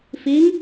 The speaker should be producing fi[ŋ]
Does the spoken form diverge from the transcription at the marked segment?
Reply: no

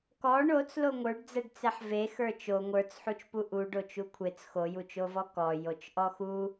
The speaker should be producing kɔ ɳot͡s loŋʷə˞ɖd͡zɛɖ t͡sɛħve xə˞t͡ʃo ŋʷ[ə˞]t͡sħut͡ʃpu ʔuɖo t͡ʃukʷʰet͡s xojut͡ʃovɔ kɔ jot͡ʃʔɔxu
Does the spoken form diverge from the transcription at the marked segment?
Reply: no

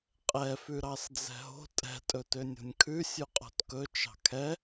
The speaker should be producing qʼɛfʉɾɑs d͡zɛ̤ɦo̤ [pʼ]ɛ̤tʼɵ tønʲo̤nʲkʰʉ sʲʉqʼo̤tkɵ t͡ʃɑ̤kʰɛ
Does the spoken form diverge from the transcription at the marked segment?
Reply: yes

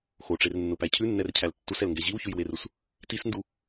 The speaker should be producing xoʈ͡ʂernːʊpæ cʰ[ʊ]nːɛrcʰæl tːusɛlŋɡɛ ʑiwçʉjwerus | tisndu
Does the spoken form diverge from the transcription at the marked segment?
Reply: yes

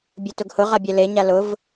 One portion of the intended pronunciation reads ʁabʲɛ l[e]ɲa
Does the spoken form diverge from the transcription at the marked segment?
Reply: no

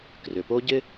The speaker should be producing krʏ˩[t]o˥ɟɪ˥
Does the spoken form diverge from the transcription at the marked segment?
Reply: yes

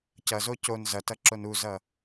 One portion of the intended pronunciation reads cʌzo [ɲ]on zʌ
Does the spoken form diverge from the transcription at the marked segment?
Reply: yes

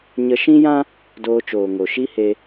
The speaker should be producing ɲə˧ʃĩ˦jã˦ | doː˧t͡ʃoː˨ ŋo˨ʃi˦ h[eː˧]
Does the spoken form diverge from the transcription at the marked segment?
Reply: yes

